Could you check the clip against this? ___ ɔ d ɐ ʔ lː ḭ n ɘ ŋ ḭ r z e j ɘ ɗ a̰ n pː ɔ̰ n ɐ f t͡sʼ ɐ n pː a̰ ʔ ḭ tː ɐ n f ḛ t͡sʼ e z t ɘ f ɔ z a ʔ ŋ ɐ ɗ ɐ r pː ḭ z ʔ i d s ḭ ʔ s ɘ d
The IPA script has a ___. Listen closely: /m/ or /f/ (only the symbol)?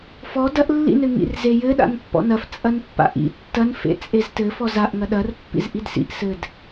f